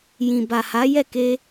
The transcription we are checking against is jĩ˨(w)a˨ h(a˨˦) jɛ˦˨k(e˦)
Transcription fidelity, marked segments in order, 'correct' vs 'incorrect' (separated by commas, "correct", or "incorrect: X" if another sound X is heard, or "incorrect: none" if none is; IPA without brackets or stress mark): incorrect: b, correct, incorrect: e˧